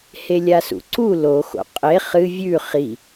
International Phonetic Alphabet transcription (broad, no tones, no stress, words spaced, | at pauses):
helʲasṵǀu loxo̰ qʼe χɨ vʲʉ χi